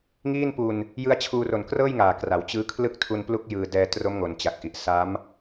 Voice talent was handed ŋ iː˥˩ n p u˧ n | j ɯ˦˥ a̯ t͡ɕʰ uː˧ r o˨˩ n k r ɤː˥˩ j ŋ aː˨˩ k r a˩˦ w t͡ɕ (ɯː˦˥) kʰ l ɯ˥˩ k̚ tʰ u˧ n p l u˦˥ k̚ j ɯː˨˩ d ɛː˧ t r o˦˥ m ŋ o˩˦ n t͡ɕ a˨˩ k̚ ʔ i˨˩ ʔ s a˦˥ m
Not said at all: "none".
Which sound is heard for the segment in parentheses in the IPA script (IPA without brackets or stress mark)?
ɯː˦˥